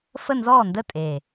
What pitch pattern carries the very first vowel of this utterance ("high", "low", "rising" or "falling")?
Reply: falling